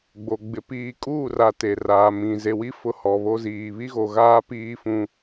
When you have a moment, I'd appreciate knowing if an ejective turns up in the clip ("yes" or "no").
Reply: yes